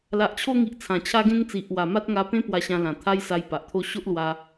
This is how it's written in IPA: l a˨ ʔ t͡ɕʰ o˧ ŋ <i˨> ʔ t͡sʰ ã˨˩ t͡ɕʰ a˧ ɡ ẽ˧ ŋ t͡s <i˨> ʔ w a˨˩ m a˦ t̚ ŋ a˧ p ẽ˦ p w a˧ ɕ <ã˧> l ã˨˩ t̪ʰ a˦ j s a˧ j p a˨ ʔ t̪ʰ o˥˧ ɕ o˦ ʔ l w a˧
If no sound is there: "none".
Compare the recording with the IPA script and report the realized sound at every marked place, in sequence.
i˨, i˨, ã˧

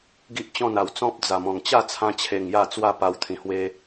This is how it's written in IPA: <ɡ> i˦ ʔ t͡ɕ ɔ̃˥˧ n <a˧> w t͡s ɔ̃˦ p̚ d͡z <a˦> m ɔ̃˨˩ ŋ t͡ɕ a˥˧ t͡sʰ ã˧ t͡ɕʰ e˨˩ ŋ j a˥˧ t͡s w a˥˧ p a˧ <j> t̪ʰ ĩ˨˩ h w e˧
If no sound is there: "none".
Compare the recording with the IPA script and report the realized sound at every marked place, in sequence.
ɡ, a˨˩, a˨˩, w

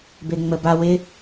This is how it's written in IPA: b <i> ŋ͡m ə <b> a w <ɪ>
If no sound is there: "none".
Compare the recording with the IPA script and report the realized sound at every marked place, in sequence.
e, b, ɪ

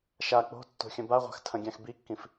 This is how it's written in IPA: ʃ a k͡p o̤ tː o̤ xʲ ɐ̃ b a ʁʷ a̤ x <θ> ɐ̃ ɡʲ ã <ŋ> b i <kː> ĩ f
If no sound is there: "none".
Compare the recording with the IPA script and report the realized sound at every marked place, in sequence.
tʰ, x, kː

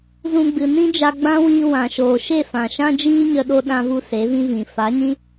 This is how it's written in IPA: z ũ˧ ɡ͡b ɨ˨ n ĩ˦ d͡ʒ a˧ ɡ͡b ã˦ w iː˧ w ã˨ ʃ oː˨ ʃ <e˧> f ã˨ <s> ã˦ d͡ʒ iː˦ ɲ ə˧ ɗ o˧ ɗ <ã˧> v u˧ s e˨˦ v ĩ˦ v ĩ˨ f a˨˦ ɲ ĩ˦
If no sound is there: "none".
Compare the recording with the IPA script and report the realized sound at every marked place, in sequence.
e˦˨, ʃ, ã˧

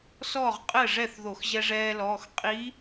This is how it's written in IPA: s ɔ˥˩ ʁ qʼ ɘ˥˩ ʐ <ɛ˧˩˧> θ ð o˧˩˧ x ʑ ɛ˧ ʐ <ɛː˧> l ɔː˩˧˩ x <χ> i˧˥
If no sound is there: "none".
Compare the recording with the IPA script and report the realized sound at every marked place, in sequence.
ɛ˥˩, ɛː˧, qʼ

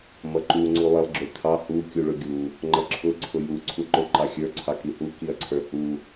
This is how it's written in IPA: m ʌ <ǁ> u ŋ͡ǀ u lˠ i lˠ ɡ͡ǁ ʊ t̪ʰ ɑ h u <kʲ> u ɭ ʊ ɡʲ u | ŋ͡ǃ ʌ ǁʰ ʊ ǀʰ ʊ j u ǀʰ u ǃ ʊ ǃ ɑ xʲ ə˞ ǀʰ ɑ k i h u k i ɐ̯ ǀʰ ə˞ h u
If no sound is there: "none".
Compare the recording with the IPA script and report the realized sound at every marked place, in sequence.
ǃ, kʲ

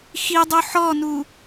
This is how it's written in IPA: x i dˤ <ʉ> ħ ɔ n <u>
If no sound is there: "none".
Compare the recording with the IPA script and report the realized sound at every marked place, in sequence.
u, u

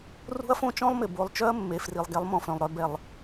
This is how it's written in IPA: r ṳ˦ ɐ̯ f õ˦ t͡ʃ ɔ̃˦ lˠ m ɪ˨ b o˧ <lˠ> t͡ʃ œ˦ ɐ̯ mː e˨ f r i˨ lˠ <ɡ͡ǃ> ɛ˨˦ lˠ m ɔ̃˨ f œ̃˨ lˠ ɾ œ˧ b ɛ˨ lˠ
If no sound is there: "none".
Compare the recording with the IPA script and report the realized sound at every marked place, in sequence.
lˠ, ɡ

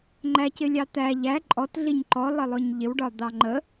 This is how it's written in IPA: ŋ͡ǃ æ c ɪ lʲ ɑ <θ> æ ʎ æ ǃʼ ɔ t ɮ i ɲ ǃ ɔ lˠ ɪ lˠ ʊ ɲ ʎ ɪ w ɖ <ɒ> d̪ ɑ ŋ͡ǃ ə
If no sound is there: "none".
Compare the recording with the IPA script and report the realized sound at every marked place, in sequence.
t̪, ɒ

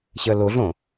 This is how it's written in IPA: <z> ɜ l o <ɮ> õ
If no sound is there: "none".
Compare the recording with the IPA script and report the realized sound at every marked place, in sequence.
ɕ, ɮ

